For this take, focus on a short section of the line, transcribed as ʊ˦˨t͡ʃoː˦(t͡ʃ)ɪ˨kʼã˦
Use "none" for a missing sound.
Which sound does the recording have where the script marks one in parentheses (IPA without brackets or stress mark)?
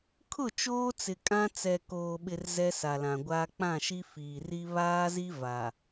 t͡s